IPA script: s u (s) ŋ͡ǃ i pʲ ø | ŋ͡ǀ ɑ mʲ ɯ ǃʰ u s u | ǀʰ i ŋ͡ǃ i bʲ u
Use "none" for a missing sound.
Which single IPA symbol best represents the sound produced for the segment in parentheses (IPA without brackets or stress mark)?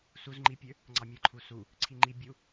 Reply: z